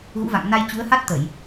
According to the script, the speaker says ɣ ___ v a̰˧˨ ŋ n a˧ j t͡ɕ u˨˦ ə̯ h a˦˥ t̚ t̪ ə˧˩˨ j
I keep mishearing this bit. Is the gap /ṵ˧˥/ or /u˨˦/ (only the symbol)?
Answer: ṵ˧˥